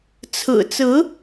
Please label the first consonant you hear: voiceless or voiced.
voiceless